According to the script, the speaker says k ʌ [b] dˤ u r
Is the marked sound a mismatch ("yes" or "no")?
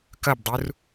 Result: no